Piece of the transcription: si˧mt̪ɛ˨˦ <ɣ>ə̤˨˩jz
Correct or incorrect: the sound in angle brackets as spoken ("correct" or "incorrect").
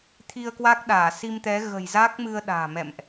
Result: correct